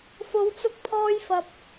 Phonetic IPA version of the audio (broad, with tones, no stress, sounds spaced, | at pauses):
f o˨˧ w t͡s ʊ˧ k̚ pʰ ɔː˧ j f ɐ˨ p̚